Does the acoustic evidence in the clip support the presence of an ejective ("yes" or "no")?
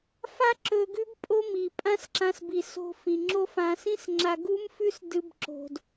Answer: yes